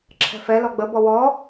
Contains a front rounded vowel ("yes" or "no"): no